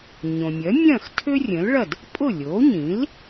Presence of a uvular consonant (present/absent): absent